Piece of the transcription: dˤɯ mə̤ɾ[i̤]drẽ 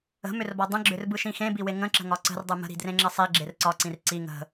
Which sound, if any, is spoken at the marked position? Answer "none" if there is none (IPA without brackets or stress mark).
i̤